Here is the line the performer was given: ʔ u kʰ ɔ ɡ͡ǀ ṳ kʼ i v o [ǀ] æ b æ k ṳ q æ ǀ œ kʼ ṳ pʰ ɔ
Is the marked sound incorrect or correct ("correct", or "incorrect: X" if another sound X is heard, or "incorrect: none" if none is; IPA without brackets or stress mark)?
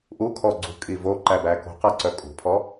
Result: incorrect: ǃ